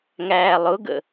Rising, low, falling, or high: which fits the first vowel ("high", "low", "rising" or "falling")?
low